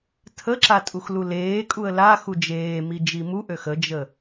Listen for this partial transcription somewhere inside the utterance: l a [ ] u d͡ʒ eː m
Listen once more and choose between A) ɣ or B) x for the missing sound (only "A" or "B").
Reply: B